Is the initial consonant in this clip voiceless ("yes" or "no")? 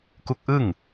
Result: yes